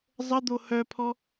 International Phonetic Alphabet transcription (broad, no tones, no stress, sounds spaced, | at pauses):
zˤ ə d̪ o h œ pʰ ɔ